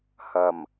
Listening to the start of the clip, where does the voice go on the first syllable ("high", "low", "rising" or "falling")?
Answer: low